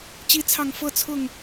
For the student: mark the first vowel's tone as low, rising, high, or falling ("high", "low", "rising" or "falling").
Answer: high